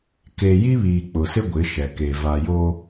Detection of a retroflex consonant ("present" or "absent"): absent